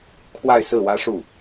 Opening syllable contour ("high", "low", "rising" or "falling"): falling